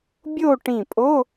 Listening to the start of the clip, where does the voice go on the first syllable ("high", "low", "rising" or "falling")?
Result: falling